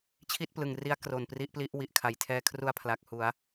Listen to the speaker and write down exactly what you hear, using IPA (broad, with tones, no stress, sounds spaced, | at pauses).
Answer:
t͡ɕʰ i˥˩ t̚ p l ɯ˨˩ ŋ r i˦˥ a̯ k r o˨˩ n p r i˦˥ ʔ p l i˦˥ ʔ w i˨˩ ʔ kʰ a˨˩ j tʰ ɛː˧ kʰ r u˧ a̯ pʰ l a˨˩ k̚ h u˩˦ a̯